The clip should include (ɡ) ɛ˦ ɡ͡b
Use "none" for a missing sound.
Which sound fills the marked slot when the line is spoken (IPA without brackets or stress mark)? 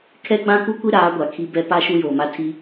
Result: kʰ